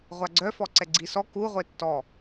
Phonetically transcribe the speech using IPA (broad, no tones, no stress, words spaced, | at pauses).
ʁʷaɡ͡ǀœ fɔǀɛɡ͡ǀisɔ ku ʁʷetːɔ